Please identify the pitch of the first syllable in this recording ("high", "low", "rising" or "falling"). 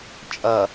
low